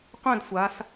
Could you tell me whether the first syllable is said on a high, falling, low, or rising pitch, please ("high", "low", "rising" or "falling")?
falling